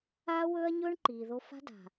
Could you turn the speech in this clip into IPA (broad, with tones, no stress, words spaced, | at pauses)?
aː˦wɵː˦ɐ̯ɲɵː˦ɳ ǃiː˨ðo˦ fa̤˦da̤˨